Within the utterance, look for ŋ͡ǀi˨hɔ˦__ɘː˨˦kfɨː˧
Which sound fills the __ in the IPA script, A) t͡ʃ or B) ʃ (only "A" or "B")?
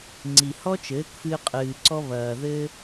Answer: A